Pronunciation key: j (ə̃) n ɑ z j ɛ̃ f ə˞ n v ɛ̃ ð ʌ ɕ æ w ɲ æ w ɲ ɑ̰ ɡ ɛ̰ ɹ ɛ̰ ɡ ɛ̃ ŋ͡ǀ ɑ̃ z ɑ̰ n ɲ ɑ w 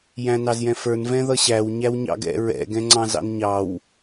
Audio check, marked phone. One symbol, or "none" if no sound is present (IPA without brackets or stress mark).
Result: æ̃